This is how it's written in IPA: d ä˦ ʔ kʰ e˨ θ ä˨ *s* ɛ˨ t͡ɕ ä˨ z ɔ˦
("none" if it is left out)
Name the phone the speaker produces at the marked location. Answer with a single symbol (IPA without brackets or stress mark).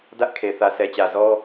s